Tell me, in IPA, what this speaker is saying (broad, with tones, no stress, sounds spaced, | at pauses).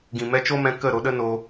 ɡ ĩ˨ m ɛ˧ t͡ʃ o˦ m ɛ̃˧ k ə˦˨ ɾ o˧ ɗ ə˦ n o˧